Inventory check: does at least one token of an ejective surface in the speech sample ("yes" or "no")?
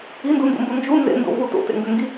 no